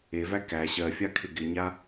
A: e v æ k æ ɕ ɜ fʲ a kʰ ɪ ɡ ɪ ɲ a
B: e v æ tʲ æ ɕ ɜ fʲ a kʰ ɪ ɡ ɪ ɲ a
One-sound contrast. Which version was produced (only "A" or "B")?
A